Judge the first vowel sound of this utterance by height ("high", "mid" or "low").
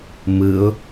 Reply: high